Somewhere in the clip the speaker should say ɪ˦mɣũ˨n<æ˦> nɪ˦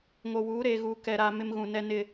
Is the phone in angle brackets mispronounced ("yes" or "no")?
yes